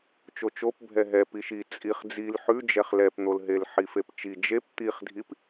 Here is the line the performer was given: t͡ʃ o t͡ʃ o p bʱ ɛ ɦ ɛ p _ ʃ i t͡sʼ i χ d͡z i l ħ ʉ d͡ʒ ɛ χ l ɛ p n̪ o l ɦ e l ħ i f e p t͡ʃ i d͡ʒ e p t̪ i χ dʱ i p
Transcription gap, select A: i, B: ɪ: A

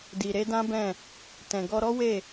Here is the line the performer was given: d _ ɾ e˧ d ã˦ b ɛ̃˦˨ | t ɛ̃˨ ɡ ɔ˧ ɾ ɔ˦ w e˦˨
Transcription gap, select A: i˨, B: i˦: A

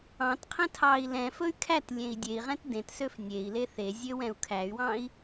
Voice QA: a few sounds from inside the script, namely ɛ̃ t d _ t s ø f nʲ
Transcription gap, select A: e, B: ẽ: B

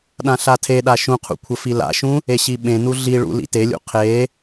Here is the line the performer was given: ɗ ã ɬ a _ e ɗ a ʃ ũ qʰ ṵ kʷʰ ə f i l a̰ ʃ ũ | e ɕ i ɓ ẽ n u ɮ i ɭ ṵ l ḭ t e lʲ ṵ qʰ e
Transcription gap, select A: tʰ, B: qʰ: A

